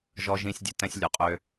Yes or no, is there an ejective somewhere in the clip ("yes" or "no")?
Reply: yes